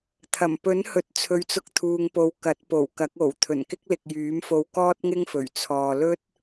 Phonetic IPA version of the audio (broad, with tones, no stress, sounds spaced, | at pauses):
t̪ʰ ɐ˨˩ m p ɵ˨˥ n h ɵ˨ t̚ t͡sʰ ɵ˨ ɥ t͡s ʊ˧ k̚ t̪ʰ uː˨ ŋ p o˨ w k ɐ˨˥ t̚ p o˨˩ w k ɐ˨˥ k̚ o˨˩ w t̪ʰ ɵ˨˩ n k ɪ˥ k̚ l ɪ˨ k̚ j yː˨˥ m f o˧ w k ɔː˥ t̚ ŋ ɪ˥ ŋ f ɵ˨˩ ɥ t͡sʰ ɔː˨ l ɵ˥ t̚